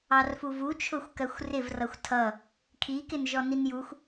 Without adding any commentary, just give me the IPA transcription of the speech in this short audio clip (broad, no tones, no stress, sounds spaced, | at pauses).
ɑ r f u v u t͡ʃʰ ʊ xʷ k ɜ xʷ r ɪ v r ʌ xʷ tʰ ʌ | kʰ i k ɪ n ʒ ɔ n i n j u xʷ